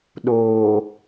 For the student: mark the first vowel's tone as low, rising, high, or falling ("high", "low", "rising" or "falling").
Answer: low